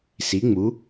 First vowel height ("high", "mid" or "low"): high